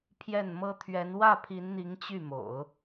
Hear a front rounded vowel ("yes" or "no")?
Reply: yes